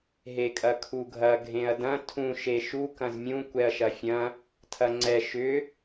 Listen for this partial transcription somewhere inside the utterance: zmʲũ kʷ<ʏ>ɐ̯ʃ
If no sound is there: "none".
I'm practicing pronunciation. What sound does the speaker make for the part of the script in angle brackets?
ɛ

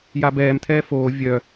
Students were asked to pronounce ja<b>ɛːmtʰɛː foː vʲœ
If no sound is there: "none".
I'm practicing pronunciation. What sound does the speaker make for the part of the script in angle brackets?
b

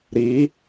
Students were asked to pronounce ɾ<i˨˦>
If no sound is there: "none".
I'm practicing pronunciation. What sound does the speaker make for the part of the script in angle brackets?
i˨˦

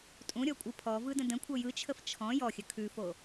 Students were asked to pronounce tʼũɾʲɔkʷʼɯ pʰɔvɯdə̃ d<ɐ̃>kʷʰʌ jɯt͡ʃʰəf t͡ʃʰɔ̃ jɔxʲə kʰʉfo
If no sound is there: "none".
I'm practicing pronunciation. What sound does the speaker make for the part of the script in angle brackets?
ə̃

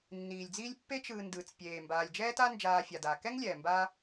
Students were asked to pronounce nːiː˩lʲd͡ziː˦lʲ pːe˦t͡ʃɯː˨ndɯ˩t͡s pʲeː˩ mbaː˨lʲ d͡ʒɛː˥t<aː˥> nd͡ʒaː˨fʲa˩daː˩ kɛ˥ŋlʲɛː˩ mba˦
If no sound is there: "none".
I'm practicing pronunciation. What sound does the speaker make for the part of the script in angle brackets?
a˥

